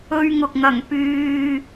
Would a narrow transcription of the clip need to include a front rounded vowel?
yes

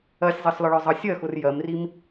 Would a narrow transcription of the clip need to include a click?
no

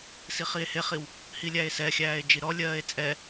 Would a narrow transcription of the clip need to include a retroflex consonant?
no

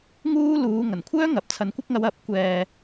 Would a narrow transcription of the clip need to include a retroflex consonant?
no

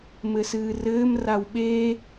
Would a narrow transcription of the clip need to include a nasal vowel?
no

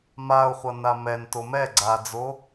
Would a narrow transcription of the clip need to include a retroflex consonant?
no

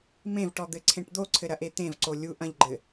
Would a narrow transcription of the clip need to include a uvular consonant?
no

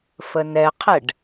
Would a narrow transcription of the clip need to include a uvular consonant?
yes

